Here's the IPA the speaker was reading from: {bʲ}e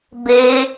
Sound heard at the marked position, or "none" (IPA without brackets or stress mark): b